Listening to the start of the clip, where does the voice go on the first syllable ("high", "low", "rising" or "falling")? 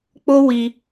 high